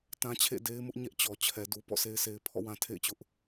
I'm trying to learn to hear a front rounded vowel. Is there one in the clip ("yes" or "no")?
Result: no